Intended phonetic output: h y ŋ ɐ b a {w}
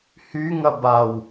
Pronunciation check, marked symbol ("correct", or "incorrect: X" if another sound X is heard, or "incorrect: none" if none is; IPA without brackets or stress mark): correct